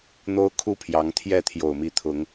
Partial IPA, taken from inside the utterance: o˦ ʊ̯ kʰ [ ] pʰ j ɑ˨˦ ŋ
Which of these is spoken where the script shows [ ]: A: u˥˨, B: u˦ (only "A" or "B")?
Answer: A